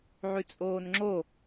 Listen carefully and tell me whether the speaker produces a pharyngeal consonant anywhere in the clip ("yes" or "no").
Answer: yes